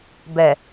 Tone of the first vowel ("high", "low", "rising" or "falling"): low